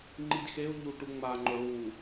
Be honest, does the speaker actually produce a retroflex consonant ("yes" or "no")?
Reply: yes